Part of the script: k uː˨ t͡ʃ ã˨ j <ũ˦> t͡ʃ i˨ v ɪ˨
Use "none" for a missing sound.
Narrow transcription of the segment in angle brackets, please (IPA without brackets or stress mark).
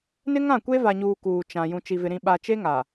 ũ˨